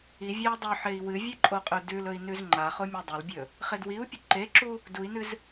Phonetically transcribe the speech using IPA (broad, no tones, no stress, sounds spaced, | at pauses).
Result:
i vʲ e u̯ dˤ ɵ ħ e i̯ w ɨ vʲ ɨ ǃʼ o qʼ ɵ d ʉ l ɵ i̯ n ʉ z ŋ͡ǃ a χ o mʲ u dˤ ɐ l bʲ ɵ | χ e d w i u̯ pʲ ɵ ǃ e ǁ u | d u i̯ n ɨ z